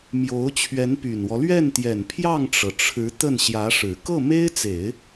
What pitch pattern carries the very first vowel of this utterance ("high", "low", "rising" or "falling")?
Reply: rising